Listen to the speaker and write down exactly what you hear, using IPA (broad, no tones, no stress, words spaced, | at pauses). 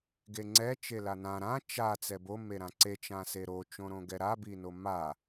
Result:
ɡeŋ͡ǀɛ t͡ʃelanã ɾã t͡ʃa t͡sɛbo meɾãǀe t͡ʃãseɾo t͡ʃõɾõɡɛɾa binoma